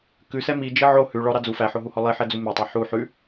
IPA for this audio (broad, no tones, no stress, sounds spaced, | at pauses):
k ʉ s ɛ m i d͡ʒ i ʕ o h ʉ ɭ ɔ ɾ ɑ d͡z u f æ ħ o ɦ u h ɔ lˠ i ħ ɛ d͡z u m ɛ tˤ ɛ ħ u ħ ʉ